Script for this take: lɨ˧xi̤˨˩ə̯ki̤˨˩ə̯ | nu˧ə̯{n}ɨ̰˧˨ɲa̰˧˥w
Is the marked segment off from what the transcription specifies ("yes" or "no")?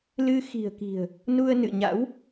no